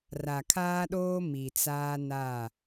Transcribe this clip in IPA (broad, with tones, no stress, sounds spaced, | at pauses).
r a˨ kʰ aː˦ ɗ oː˦ m i˨ t͡s aː˦ n a˦˨